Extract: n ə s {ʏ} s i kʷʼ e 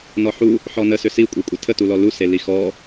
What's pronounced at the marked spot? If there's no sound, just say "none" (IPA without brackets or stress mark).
ʏ